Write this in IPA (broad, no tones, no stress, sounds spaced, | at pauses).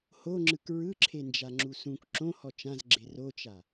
h o ŋ͡ǁ ɯ k ɹ ɯ ǁʰ e n d͡ʒ a ŋ͡ǁ u s ũ k ǁ õ h ɔ t͡ʃ ã z ɡ͡ǁ e r o t͡ʃ a